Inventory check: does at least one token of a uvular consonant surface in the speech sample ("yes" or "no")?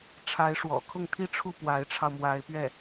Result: no